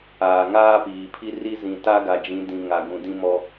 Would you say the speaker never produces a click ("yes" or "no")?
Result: yes